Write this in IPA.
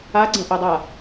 a ɡ͡ǀ ɛ̃ ʔ ɛ dˤ a

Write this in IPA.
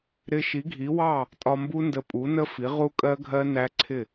ɾ ɪ˧ ʃ i˩˥ ɡʱ i˩˥ w ɑ˥˩ | tʼ ɒ˧ m b u˦˥ n d ə˧ pʼ u˩˥ n ə˦˥ f i˩˥ ʁ u˦˥ kʼ ɜ˦˥ ɡʱ ɜ˦˥ n æ˦˥ ǀʰ ɪ˥˩

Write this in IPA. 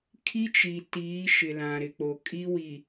kʰ i˦ t͡ʃ i˨ t iː˨˦ ʃ ɪ˨ l ã˨ ɾ ɪ˨ k͡p o˨ kʼ i˦ w i˨

